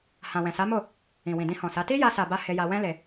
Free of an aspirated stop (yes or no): yes